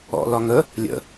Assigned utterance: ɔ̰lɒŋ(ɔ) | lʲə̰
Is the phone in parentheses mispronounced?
yes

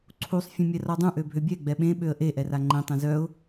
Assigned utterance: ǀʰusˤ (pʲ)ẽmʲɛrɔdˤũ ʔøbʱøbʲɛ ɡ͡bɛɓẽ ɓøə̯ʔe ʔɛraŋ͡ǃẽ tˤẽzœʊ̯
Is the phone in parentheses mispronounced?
yes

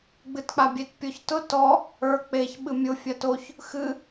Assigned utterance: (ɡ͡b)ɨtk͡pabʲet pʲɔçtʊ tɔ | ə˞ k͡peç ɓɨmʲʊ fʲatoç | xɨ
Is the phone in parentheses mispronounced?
no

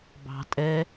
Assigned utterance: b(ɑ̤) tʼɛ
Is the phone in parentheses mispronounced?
no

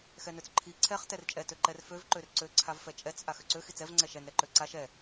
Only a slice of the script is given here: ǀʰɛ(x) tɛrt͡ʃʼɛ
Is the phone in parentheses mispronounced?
yes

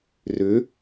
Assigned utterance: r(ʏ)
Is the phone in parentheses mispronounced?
no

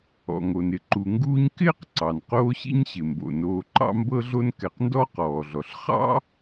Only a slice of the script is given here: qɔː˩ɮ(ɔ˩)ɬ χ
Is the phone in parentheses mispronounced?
no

